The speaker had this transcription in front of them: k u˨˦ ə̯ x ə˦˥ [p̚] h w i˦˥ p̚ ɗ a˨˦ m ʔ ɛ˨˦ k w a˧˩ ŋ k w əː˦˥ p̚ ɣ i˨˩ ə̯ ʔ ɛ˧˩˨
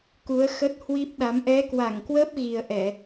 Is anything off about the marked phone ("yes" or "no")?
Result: yes